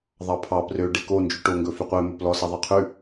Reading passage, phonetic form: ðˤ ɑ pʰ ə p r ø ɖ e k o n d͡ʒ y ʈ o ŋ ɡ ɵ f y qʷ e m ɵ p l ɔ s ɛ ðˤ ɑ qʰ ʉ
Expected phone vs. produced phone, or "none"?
ə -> ɑ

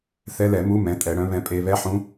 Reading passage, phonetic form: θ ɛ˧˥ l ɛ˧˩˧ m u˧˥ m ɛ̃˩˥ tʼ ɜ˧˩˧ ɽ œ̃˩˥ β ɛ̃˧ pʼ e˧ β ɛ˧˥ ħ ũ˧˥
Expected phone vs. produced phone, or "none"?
ɜ˧˩˧ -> ɛ˧˩˧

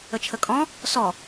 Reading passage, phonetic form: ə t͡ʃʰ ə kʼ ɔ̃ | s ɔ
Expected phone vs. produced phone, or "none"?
none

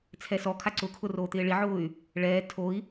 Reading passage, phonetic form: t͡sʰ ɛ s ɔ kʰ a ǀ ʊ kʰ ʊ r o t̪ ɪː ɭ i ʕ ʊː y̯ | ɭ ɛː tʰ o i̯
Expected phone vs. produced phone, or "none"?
none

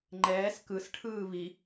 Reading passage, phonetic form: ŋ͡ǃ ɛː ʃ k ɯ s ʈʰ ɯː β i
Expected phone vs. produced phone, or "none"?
ʃ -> s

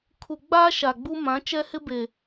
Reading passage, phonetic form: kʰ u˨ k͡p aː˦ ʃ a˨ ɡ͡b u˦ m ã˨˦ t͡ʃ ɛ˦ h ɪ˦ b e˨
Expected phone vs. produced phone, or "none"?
k͡p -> ɡ͡b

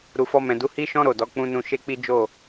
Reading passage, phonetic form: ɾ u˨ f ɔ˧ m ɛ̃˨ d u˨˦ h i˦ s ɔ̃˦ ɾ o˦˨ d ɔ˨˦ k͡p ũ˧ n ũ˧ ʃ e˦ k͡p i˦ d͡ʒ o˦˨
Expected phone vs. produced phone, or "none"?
s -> ʃ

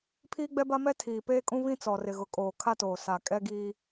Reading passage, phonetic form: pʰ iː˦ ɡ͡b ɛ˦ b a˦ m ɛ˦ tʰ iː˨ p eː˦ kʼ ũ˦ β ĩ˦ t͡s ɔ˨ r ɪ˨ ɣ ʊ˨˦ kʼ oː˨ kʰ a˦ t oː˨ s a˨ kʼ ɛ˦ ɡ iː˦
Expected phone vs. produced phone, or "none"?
none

